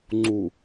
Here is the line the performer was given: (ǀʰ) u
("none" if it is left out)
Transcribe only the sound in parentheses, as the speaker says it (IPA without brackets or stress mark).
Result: ŋ͡ǀ